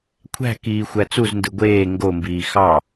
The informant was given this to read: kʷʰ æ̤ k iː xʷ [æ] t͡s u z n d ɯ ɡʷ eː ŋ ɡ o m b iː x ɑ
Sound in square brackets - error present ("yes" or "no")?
no